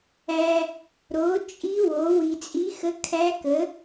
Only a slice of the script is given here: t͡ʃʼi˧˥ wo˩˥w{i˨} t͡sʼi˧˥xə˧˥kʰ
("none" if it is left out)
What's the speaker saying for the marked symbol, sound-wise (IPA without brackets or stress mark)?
i˨